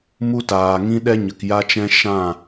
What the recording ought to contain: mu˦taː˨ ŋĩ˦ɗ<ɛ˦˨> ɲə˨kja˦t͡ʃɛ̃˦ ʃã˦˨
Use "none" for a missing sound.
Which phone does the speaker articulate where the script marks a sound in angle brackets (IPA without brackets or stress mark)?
ɛ˦